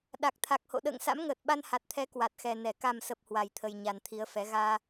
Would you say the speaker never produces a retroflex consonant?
yes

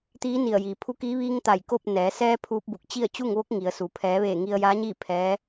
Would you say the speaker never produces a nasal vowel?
yes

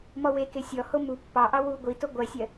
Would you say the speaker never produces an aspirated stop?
yes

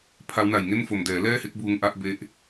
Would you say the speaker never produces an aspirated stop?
no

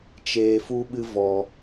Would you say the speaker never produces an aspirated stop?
yes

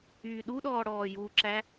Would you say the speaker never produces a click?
no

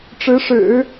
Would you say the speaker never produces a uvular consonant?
yes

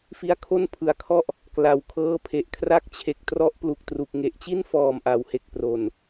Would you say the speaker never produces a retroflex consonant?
yes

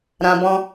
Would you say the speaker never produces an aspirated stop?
yes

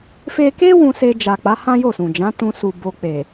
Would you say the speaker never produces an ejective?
yes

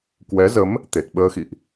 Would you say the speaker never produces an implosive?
no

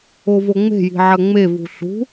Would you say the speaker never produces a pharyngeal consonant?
no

